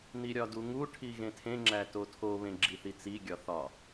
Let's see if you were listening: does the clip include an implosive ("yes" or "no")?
no